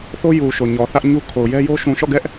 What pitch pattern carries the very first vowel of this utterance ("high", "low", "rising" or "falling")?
high